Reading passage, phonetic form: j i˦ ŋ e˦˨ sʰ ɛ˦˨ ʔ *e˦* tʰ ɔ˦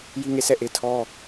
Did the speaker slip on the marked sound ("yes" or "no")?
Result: no